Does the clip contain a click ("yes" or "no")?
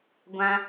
no